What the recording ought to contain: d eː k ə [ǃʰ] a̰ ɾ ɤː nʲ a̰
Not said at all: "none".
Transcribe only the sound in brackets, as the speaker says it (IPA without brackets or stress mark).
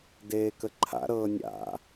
ǃʰ